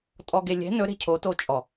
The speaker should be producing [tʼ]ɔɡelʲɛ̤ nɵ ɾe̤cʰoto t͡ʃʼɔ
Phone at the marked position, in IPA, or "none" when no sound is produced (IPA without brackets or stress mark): tʼ